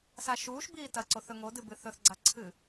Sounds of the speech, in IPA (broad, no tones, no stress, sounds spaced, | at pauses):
s a ʃ uː ʃ b iː t ɐ ǀ o θ ɵ ŋ o d ɨ b ɨ θ ɵ θ ɡ͡ǀ a ǀʰ ɨ